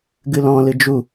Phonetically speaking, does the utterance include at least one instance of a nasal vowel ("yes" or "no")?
yes